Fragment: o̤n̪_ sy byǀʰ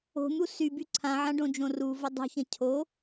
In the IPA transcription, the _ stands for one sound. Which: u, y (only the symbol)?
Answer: u